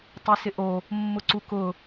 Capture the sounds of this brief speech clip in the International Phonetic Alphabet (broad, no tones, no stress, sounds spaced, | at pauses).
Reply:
tˤ e s ɪ ʔ o | mː ʊ ǀ u k ʊ